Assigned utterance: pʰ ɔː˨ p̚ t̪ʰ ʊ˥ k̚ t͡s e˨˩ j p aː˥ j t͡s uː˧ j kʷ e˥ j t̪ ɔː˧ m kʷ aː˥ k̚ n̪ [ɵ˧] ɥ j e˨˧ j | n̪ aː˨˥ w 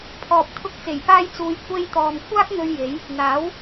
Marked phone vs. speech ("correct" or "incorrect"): correct